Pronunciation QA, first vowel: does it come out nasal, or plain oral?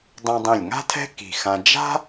nasal